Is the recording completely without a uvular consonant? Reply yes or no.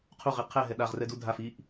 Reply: no